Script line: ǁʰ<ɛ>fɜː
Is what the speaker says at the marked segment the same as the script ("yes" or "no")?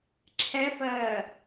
yes